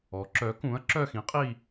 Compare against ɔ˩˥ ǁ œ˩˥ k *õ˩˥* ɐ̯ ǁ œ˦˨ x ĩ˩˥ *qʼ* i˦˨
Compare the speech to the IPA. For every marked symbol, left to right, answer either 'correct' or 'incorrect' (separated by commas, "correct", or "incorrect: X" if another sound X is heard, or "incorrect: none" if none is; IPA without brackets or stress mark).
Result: incorrect: ũ˩˥, correct